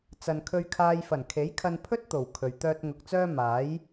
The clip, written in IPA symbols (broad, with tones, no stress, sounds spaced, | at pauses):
t͡s ɐ˨ n kʰ ɵ˧ ɥ kʰ aː˧ j f ɐ˨˩ n kʰ e˨˥ j kʰ ɐ˧ n pʰ ɵ˥ t̚ t̪ o˨˩ w kʰ ɵ˨ ɥ t̪ œː˧ t̚ ŋ ʊ˨ k̚ t͡s œː˥ m aː˨˥ j